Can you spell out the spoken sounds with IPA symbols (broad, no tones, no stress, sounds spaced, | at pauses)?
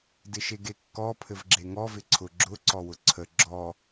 d ɪ ʃ e ɡ e kː ɔ pʰ ɘ v ɡ͡ǁ e ŋ ɔ v ɪ ǀʰ ʊ ɡ͡ǁ ʊ ǀ ɔ w ʊ ǀʰ ə ɡ͡ǁ ɔ